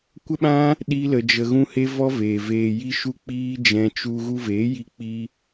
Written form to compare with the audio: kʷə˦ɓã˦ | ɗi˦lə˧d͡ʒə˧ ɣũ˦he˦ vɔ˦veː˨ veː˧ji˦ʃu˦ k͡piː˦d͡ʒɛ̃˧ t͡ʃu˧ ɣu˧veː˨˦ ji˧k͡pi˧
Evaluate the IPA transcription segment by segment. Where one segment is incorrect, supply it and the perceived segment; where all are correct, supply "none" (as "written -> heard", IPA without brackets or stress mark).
none